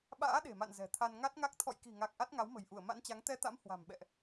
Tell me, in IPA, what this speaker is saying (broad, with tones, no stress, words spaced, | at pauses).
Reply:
ɓa̰ː˧˥ɗe̤˨˩ma̰˧˨n zɛ̤˨˩t̪ʰa˧n ŋa˦˥t̚ŋa˦˥k̚ t̪ʰɔ̰˧˨jki̤˨˩ŋa˨˩k̚ ʔa˦˥t̚ŋa˨˦wmə̤˨˩jʔu˧˩ə̯ ma̰˧˥nt͡ɕa˨˦ŋ t̪ɛ˧t̪a̰˧˥m hwa̤˨˩m ɓɛ̰˧˨ʔ